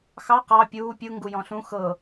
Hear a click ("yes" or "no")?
no